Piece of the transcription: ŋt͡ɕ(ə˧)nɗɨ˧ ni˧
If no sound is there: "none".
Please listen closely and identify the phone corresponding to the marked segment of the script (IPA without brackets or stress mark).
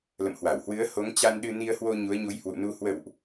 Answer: a˧